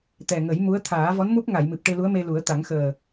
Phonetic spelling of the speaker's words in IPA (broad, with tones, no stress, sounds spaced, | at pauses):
t̪ ɛ˨˩ ŋ ə˨˩˦ j m u˧˥ ə̯ t̪ʰ aː˨˩˦ v ɔ˧˥ n m u˦˥ p̚ ŋ a˨˩˨ j m ɨ˨˩ p̚ ʈ e˧ l u˧˥ ə̯ m e˧ l u˨˩˦ ə̯ t̪ a˨˩˦ ŋ x əː˨˩